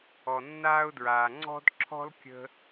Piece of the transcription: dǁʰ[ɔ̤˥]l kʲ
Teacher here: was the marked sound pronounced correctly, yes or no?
yes